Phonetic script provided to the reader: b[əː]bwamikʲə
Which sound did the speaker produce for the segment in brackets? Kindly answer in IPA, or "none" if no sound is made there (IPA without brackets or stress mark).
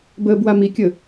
əː